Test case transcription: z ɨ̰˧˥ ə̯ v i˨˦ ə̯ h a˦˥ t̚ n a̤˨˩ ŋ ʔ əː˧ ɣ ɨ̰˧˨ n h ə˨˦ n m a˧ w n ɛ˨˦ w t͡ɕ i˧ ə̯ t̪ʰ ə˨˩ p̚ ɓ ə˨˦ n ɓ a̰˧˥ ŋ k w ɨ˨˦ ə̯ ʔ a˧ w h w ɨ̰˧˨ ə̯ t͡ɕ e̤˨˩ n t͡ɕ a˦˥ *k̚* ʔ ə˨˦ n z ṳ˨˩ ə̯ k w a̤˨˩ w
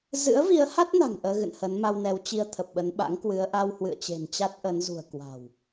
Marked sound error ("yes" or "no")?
yes